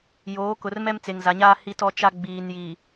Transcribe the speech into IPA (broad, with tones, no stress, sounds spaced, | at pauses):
j oː˨˦ k ʊ˨ r m ɛ˦ m t͡s e˨ ŋ z a˨ ɲ aː˦ h i˦ t ɔ˦ t͡ʃ a˦ ɡ͡b iː˨ n j i˨